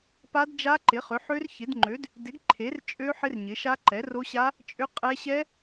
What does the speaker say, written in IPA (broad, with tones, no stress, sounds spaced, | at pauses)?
p a˦˥ d d͡ʒ a˦˥ ǃ ɪ˨˥ χ ʏ˨˥ ħ ø˦˥ r ç ɪ˨˥ d ŋ͡ǃ ø˨˥ d | d ɪ˨˥ ɡ ǃʰ e˨˥ r t͡ʃʼ ø˦˥ ħ ɪ˦˥ r ɲ ɪ˨˥ ʃ a˦˥ ǃ ɛ˨˥ r o˦˥ ɕ a˦˥ | t͡ʃʼ ʏ˦˥ qʼ ɛ˦˥ ɕ ɛ˦˥